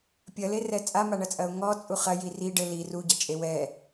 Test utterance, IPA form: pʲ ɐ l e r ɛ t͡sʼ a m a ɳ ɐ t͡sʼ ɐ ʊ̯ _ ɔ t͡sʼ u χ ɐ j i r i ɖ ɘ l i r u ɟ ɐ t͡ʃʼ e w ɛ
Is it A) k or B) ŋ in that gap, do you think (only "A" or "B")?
B